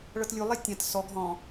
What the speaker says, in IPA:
ɭ ɤ t lʲ u lˠ ɛ tʲ ã t s ɔ ɡ ɦ ɔ̃

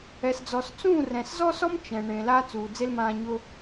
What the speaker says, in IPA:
ɛ˨ s d͡z ɔ˨ s t͡s ũː˦˨ r ɛ̃˨ s z ɔ˦ s ɔ˦ m t͡ʃ ɛ̃˨ ɳ ẽ˨ l a˦ t͡s uː˨ d͡z e˦ l m ãː˧ ɲ ʊ˦

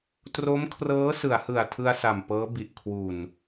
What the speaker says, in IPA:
t r o˦˥ m kʰ r ɤː˦˥ s ɯ˩˦ a̯ h ɯ˨˩ a̯ tʰ ɯ˧ a̯ s a˨˩ m p ɤː˦˥ b i˨˩ ʔ kʰ w u˨˩ n

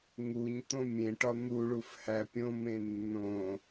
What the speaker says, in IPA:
ŋ u ɲ t̪ õ mʲ ẽ ʈ ɒ n̪ u ɭ u f h æ pʲ õ m ẽ nː õ

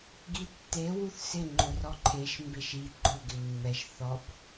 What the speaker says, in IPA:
ɡ i tː e w u θ s ɪ ŋ͡ǃ ʊ r ɔ ǃʰ e ʃ m b e ʃ i ɡ͡ǃ ʊ ɡ ɪ mː ɛ ʃ θ ɔ b

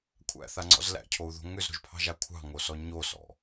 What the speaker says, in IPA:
kʷʰ æ̰ θ a ŋ͡ǀ ɔ̰ z l æ̰ cʰ o u̯ ð o̤ ŋ ʏ z ɾ o̤ ʒ pʰ ɑ̤ ʒ a kʷʰ ɑ̤ ŋ o s ɔ ɲ o s ɔ̰

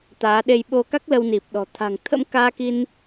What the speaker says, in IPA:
t̪ aː˨˦ ɗ e˧ j ɓ o˧ k a˦˥ k̚ l ə˧ w n i˨˩ p̚ ɗ ɔ̤˨˩ t̪ʰ a̤˨˩ ŋ t̪ʰ ə̰˧˥ m k aː˧ k i˧ n

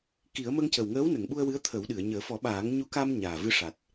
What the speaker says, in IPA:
k i˨˩˦ ə̯ m ə˧ ŋ c ə˨˩ w ŋ əː˧˥ w n ə˨˩˨ ŋ ɓ u˧ ə̯ w ɨ˧˥ ə̯ t̪ʰ ə˨˩˦ w ɗ ɨ˨˩˨ ə̯ ɲ əː˨˩˦ f ɔ˨˩˦ ɓ aː˨˩˦ ŋ ɲ u˧˥ k a˧ m ɲ aː˨˩ v ɨ˧ ʂ a˨˩ t̚

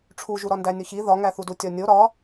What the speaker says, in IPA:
ʈ͡ʂʰ u ʒ u ɾ ɒ n d æ nʲ o ç i ð ɒ ŋ æ θ u d u tʲ ɒ nʲ o ɾ ɒ

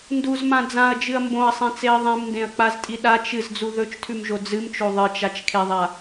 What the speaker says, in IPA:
n d u z m ã d͡z ã ɐ̯ d͡ʒ ɨ ɐ̯ m b õ ɐ̯ sˤ ẽ t͡s e ɐ̯ ðˤ ẽ m n d ẽ ɐ̯ k͡p a z tʼ i ɗ a t͡ʃ ɨ z d͡z u ð ɵ t͡ʃ tʰ ʉ m ʒ o d͡z ɨ m t͡ʃ o ðˤ ɨ t͡ʃ a t͡ʃ kʰ e ðˤ a

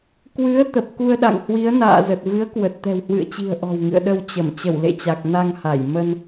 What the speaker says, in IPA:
k w ɨ˨˦ ə̯ t̪ ə˨˩ p̚ k u˧ ə̯ ɗ a̰˧˨ ŋ h w i˨˦ ə̯ n a̰ː˧˨ z ə˨˩ t̚ v ɨ˨˦ ə̯ k w ə˨˩ t̚ t̪ ɛ̤˨˩ w h w ɨ̰˧˨ ə̯ t͡ɕ i̤˨˩ ə̯ ʔ ɔ̤˨˩ w ŋ ɨ̰˧˨ ə̯ ɗ ə˧ w t͡ɕ ə˧˩ m t͡ɕ ə˧˩ w l ḛ˧˨ t͡ɕ a˨˩ k̚ n a˧ ŋ h a˧˩ j m ə˧ n

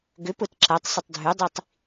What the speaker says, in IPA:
ɡ ʏ p ʊ t ǁ a tˤ s ʏ tˤ dʱ ʉ dˤ i tˤ

